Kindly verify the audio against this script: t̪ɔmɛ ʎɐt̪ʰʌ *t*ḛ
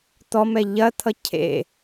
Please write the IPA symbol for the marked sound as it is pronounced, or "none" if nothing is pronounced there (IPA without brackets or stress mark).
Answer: cʰ